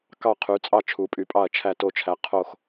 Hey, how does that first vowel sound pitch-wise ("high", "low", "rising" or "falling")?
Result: falling